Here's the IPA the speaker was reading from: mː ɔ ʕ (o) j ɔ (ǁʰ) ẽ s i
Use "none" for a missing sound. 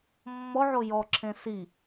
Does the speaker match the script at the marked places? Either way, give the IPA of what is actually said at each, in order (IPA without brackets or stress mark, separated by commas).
o, ǁʰ